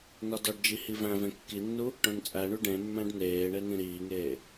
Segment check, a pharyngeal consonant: absent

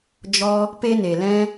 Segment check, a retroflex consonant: absent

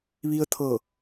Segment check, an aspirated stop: present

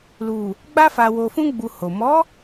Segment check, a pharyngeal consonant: absent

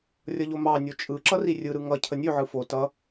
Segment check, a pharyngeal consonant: present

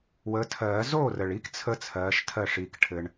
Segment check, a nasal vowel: absent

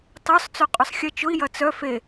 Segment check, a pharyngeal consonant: absent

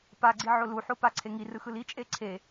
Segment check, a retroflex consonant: absent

